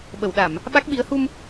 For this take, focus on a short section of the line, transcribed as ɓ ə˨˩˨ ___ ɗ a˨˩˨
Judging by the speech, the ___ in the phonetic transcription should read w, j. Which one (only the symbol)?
w